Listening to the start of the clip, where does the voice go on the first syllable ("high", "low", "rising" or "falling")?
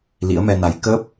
rising